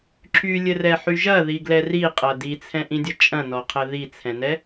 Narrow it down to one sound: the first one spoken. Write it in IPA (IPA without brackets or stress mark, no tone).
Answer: ǁʰ